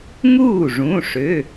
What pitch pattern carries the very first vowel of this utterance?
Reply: falling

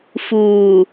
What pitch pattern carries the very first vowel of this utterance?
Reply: low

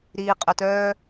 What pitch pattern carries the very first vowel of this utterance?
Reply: low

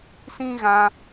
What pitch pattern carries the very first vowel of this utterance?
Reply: high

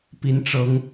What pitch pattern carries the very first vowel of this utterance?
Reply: rising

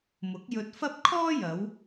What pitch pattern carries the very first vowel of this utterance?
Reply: rising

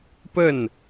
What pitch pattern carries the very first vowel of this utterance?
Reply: falling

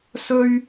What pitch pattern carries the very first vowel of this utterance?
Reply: high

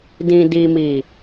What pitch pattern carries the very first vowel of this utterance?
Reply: low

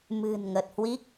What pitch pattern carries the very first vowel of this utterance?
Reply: low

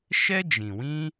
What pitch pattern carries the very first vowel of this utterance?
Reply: high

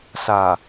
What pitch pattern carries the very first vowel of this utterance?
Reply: low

